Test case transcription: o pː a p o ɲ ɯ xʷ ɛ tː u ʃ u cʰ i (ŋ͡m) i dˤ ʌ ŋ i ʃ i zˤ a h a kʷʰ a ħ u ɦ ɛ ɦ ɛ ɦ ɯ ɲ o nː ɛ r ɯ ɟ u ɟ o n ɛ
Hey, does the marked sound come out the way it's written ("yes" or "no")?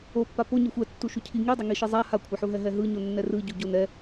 no